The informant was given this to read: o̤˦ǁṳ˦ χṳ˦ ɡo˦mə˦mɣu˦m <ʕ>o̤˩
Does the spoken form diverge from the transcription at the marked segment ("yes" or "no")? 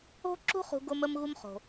yes